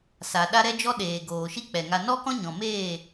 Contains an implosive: yes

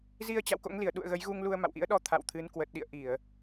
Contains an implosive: yes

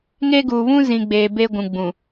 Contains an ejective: no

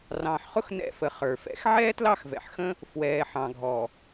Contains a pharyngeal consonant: yes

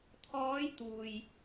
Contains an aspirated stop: yes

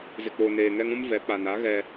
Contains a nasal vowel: yes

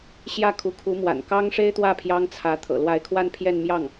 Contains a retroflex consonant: yes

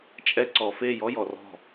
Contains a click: yes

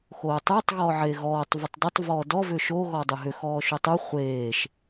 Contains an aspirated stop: no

